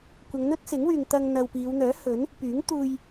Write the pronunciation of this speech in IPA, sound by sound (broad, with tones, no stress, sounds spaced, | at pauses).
kʷ ɐ˨˧ ŋ n̪ ɵ˥ t̚ s ɪ˨˥ ŋ w yː˨ ŋ t̪ ɐ˧ ŋ n̪ ɐ˨ w p iː˨˧ w n̪ œː˨˥ h ɵ˨˥ n | p yː˨˥ ŋ t̪ uː˧ j